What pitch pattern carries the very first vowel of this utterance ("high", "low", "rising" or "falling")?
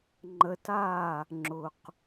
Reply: low